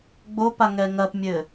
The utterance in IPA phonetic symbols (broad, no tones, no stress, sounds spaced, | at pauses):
ɡ͡b o p a ŋ ɛ ŋ ɐ p mʲ ɘ